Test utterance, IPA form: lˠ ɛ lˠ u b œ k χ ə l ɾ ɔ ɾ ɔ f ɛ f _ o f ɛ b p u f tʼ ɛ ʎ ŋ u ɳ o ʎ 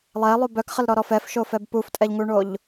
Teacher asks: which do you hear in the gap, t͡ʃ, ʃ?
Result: ʃ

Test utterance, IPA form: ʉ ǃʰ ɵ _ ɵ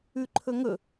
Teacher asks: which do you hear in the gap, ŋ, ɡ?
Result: ŋ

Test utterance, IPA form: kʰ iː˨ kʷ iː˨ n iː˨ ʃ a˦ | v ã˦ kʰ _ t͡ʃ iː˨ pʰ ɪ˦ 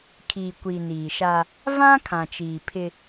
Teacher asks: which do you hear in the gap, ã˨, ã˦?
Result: ã˨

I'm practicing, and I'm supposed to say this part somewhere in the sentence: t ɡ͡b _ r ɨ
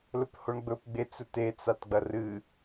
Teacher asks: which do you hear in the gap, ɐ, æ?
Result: ɐ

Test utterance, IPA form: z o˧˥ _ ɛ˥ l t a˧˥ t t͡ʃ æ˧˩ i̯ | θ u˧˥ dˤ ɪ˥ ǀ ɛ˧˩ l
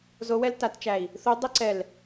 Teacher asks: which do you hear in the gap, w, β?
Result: w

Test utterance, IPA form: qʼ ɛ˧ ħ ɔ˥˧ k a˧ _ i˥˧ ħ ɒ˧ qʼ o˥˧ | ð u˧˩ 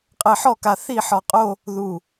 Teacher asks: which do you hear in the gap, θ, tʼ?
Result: θ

